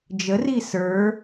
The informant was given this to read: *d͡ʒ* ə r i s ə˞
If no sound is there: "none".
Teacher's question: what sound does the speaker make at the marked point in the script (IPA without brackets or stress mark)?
d͡ʒ